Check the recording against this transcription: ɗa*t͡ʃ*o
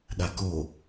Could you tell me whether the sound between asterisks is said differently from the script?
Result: yes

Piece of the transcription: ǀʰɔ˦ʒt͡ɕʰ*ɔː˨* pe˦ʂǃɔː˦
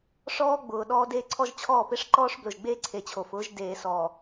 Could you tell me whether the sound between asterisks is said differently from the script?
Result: yes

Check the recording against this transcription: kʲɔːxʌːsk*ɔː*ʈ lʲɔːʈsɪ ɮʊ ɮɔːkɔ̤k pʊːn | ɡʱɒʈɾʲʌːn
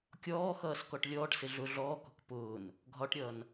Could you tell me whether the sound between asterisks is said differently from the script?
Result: yes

